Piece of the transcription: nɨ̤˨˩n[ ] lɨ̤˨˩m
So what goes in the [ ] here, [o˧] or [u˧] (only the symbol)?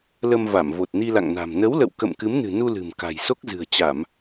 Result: u˧